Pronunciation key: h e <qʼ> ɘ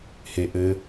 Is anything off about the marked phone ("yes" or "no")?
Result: yes